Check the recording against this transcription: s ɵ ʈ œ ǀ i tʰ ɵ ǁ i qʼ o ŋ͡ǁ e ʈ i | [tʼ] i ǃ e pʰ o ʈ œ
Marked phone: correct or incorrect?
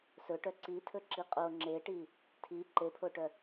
incorrect: tʰ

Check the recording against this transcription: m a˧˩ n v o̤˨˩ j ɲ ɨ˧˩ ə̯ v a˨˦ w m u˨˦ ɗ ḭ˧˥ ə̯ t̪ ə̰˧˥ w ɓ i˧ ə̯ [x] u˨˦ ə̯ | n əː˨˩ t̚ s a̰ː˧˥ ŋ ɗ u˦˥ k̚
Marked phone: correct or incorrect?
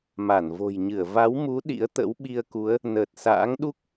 incorrect: k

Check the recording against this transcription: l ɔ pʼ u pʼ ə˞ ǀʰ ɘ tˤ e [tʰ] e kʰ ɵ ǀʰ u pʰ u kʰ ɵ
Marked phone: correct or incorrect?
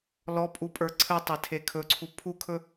correct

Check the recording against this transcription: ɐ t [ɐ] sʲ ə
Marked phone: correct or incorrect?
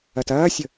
incorrect: ɐː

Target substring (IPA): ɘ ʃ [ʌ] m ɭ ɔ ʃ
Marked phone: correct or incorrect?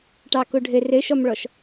incorrect: ɔ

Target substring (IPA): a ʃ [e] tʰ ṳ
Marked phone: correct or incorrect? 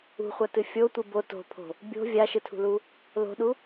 incorrect: ɨ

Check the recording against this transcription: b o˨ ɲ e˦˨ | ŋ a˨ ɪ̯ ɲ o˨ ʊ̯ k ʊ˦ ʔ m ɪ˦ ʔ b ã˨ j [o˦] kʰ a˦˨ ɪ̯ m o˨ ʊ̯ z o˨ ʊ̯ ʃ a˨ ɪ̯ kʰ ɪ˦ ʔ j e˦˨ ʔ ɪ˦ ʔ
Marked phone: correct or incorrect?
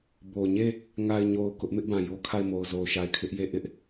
correct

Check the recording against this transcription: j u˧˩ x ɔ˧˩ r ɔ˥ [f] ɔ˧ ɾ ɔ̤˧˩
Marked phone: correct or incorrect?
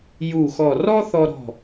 incorrect: θ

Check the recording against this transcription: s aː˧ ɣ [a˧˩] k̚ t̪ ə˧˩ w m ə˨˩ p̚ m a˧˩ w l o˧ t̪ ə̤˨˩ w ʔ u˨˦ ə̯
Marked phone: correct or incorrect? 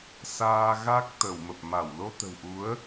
incorrect: a˦˥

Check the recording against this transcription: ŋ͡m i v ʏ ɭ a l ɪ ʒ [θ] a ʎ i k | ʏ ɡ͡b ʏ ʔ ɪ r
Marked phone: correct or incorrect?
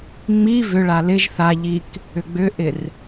correct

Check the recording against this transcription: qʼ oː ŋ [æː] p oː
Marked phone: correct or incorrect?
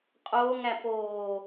incorrect: æ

